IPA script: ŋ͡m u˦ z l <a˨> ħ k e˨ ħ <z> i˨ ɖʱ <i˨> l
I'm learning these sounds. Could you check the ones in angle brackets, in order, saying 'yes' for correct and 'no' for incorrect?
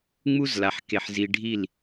yes, yes, no

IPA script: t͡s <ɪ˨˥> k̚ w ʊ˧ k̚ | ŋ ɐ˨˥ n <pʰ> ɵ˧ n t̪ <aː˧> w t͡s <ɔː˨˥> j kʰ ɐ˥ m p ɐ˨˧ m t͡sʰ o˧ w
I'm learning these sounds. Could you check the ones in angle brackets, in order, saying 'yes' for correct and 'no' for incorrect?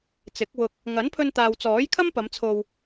yes, yes, no, yes

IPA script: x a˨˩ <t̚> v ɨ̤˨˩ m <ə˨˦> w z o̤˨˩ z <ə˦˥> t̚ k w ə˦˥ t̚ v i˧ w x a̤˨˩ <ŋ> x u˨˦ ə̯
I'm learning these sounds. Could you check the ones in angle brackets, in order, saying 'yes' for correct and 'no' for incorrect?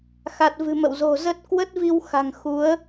yes, no, yes, yes

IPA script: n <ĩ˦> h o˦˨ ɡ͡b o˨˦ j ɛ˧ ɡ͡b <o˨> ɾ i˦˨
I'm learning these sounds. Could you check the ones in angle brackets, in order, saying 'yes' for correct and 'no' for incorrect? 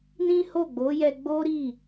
yes, no

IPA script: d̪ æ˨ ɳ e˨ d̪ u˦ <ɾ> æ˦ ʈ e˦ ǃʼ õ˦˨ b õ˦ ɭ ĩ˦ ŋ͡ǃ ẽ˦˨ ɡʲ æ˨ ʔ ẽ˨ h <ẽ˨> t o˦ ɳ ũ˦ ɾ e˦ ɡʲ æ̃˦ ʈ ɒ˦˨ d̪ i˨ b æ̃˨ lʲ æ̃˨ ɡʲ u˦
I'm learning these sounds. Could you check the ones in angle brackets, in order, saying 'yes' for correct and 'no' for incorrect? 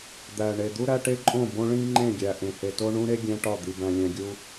yes, no

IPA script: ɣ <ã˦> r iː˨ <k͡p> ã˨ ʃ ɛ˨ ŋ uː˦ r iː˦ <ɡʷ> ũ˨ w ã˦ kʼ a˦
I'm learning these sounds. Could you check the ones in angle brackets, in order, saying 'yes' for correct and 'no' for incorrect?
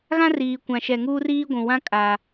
yes, no, yes

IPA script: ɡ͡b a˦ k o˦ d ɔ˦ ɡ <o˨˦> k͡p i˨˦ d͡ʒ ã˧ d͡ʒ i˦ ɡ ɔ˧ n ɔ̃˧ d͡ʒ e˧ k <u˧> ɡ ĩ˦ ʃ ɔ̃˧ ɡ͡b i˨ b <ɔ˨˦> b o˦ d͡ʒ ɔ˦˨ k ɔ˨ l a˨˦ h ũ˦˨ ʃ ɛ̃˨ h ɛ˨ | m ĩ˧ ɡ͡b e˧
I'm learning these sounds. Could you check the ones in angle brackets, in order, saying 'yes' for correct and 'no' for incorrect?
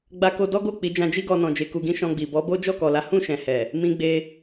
no, yes, yes

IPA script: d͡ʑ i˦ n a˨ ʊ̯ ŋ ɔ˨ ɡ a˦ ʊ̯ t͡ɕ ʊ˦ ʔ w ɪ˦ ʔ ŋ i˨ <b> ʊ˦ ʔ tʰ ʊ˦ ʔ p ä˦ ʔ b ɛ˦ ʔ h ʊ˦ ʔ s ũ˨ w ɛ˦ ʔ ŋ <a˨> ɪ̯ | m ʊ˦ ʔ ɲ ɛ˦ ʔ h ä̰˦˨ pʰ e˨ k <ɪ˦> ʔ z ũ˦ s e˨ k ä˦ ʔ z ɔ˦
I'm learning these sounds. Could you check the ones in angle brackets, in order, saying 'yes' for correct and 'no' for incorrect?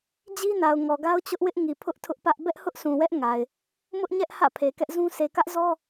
no, yes, no

